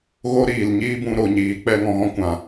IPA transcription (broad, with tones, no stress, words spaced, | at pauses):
ɣo˦ɾiː˨lɲiː˦bũ˧ ɾo˨ɲiː˨ k͡pɛ˧ ŋɔ̃˨ɣɔ̃˦ kʷã˨